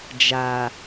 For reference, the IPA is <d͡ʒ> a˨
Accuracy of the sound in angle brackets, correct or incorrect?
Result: correct